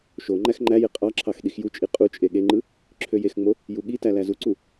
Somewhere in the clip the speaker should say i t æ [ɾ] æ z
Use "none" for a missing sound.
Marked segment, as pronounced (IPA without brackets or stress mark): l